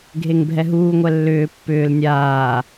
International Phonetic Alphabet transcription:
ɡʱ e ŋ bʱ ɛ ɦ uː ŋʷ ɛ lː ʏː pː ʏː l nʲ aː

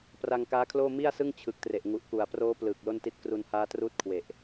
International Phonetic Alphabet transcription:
p r a˧ ŋ k aː˦˥ kʰ l oː˥˩ m i˥˩ a̯ s ɯ˥˩ ŋ t͡ɕʰ ɯ˨˩ k̚ t r e˨˩ ʔ ŋ u˨˩ ʔ k u˨˩ a̯ p r oː˦˥ p l ɯː˨˩ k̚ l o˥˩ n t i˦˥ t̚ k r u˧ n h aː˦˥ t r uː˦˥ t̚ kʰ w e˨˩ ʔ

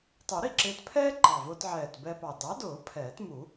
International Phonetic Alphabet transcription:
tˤ u˨˩˦ ɾ i˥˩ ǁ ɪː˧ t pʰ ɛː˥ ǃ ɑ˨˩ v ʊː˧ t ʕ ɛː˨˩ t b ɛ˧ p ɑ˨˩ d ɑ˨˥ d ʊː˨˩˦ pʰ ɛː˨˩˦ t m u˨˩˦

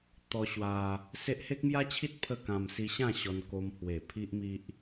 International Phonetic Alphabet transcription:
t̪ ɔ˧ ɕ w a˧ | s e˦ ʔ h e˦ k̚ m j a˦ t͡ɕʰ i˦ t̚ pʰ ə˥˧ k ã˧ m s i˧ ɕ ã˥˧ ɕ ɔ˧ n k o˧ m h w e˨˩ pʰ i˦ ʔ m i˦ ʔ

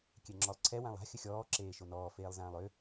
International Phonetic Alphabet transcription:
kʲ ɛ ŋ͡ǁ ɔ lˠ ǀʰ ɛ w ã lˠ a̤ xʲ ə xʲ ɔː ǁ eː ʃ o n ɔː f eː lˠ z ãː lˠ ø

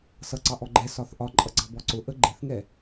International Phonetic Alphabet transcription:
s ʌ ǀ ɑ ʔ ɔ ɡ͡ǃ ɛ s ɒ θ ʔ ɒ ǃʼ ʌ ɡ͡ǀ ɑ b ɔ ǀ ʊ ʔ ə ɡ͡ǃ ɪ θ ŋ ɛ

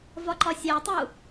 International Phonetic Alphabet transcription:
v ɒ ǃ ɒ sʲ æ tˤ u

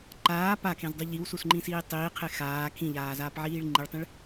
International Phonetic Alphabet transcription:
ǃ aː p a kʰ ẽ z dˤ u ʎ i w s u s ŋ͡ǃ ĩ s iː tˤ iː qʰ e x aː kʰ ĩ ʎ aː z aː p ʕ iː ɭ ŋ͡ǃ i ɭ tˤ ĩ ɭ

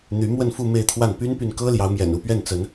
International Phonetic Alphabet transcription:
n̪ y˧˥ m w ə˥˧ n f u˥˧ m e˥˧ ɪ̯ t̪ʰ w a˥˩ n p y˥ n p y˨ n k ɤ˥ l j ɑ˧˥ ʊ̯ m j ɛ̰˨˩ n u˧˥ p ɥ ɛ˥˩ n t͡s ə˧˥ n

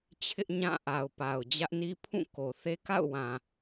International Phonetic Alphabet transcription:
t͡ɕʰ ɪ˦ ʔ ɲ ã˦˨ ʔ a˨ ʊ̯ p a˨ ʊ̯ d͡ʑ ä˦ ʔ n i˦ pʰ ũ˦˨ k o˨ θ e˦ k a̰˦˨ ʊ̯ w ã˨

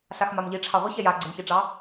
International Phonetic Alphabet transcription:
ɬ a x m a m ʎ i ʈ͡ʂʰ ɑ ʁʷ ɪ ç ɛ j a ɡ͡ǀ ɪ m ç i ʈ͡ʂ ɑ

